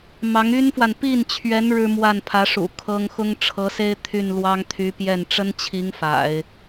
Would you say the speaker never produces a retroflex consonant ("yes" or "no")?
no